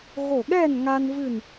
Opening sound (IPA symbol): ɣ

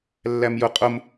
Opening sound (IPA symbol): lː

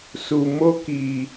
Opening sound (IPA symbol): s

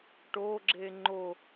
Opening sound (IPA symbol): ʈ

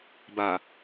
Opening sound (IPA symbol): b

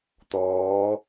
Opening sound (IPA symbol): t̪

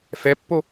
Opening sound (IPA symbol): f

